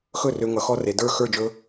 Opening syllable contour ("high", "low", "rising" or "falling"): falling